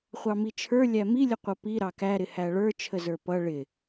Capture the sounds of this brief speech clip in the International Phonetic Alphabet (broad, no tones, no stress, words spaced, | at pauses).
χʷɑmit͡ʃʰə˞ lʲæmilʲəqʷʌ pi ɾɑkæɾɪ hæɭə˞ t͡ʃʰəzə˞pʌ ɭɪ